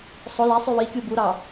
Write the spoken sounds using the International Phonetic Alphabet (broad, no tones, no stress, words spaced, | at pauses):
sˤo læsˤy wikʲu buɾɑ